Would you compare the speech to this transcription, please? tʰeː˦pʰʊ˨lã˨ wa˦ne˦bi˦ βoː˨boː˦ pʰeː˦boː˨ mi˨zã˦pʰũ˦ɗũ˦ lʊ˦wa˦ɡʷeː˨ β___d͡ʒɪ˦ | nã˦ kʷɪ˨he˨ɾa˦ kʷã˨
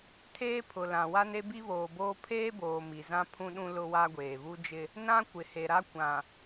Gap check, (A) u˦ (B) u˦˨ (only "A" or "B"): A